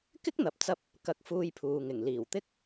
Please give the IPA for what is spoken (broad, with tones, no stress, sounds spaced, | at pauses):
k ɪ˥ k̚ n̪ ɐ˨ p̚ t͡s ɐ˧ p̚ | k ɐ˧ k̚ f uː˧ j pʰ uː˨ ŋ ɪ˨˩ ŋ l iː˨˩ w t̪ ɪ˥ k̚